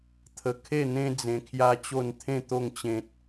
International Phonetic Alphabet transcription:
t̪ʰə˧ kʰe˥˧n̪ẽ˦d͡zẽ˧ kʰja˦t͡ɕo˥˧n t̪ʰẽ˥˧t̪o˥˧ŋ t͡ɕẽ˦t̚

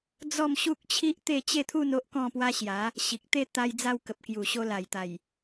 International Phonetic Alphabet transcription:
d͡zɔ˥˧mɕu˦k̚t͡ɕʰi˦ʔ t̪e˥˧t͡ɕe˥˧t̪ʰu˥˧n o˦ʔkɔ̃˥˧pwa˦ ɕja˨˦ | ɕi˨k̚t̪e˥˧ t̪a˧jd͡za˧w kə˨p̚kju˨˩ ɕo˧la˨˩jt̪a˨˩j

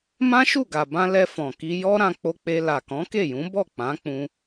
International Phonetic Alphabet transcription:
mã˦ʃu˦˨ɡa˨bã˧ lɛ˧fɔ̃˨ki˧ jɔ˦ ɾã˧k͡po˧k͡pe˧ la˨kɔ̃˨˦ke˦˨jũ˨˦ bɔ˦˨k͡pã˨˦k͡pũ˧

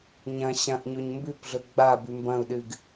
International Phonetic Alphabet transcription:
ɲɐ̃ ɕɐ̃ʔɲoɲ mbʉpɮɵ ɡ͡babʉ mbɐ̃u̯ɗɨɡ

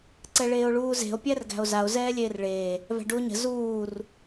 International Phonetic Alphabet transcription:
ǀɛɭeːo̯ɭuːze̤o̯ pʲærɡæ̤o̯zao̯ zɛːlʲeːrɭeː | væ̤ɖuo̯ɲə̤ zuːr

